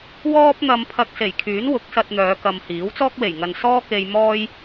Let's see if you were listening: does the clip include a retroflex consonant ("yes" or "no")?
no